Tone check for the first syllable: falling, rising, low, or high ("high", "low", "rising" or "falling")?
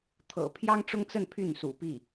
low